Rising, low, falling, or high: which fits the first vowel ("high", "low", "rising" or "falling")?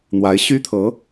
rising